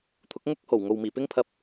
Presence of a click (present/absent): absent